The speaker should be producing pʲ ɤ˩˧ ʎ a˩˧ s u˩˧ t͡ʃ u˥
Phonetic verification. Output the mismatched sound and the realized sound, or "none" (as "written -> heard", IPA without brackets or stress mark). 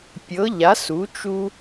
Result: none